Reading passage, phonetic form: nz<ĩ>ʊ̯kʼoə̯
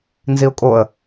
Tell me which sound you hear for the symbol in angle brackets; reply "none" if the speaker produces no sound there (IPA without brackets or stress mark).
i